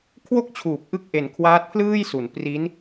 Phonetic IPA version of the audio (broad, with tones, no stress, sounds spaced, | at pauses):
kʰ w o˥˩ k̚ t͡ɕʰ uː˨˩ p̚ ʔ ɯ˥˩ k̚ ʔ e˨˩ n kʰ w aː˦˥ t̚ pʰ l ɯː˥˩ j s u˩˦ n p r i˦˥ n